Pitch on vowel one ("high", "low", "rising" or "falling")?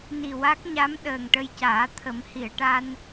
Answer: low